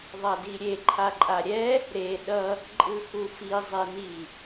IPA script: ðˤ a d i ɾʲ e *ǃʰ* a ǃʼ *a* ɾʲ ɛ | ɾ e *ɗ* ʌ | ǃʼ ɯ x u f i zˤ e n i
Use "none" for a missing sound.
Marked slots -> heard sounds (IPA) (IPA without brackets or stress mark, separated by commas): ǃʰ, a, ɗ